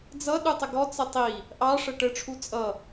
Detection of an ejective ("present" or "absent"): present